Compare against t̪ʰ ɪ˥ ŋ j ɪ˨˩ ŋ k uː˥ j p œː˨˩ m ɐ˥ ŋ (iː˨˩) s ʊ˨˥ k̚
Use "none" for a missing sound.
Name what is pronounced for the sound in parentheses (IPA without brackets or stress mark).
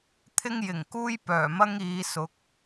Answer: iː˨˧